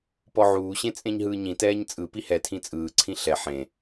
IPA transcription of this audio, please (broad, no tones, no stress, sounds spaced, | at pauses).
p ɔ ʕ uː ɕ ẽ t͡sʼ ẽ ɲ ɦ ɯː ɲ ĩ t ɛː ɲ t͡sʼ ɯ p i h ɛ tʰ ĩ t͡sʼ ɯː ǀʰ ĩ ɬ ɛ ħ ẽ